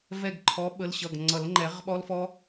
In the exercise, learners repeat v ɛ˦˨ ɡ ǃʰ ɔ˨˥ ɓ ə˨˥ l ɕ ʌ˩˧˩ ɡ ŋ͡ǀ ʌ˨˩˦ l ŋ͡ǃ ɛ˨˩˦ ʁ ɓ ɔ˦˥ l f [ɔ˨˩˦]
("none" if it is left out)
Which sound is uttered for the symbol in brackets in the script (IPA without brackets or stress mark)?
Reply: ɔ˦˥